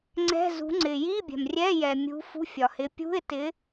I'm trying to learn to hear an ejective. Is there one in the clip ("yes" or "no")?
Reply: no